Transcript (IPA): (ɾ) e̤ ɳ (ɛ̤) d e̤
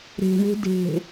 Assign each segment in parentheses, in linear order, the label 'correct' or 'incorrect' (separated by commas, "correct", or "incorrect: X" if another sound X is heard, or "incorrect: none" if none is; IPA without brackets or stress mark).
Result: correct, incorrect: e̤